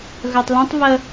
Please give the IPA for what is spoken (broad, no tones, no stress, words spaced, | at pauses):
ɣœtˤlũtˤ βə